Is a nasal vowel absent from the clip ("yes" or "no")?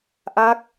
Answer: yes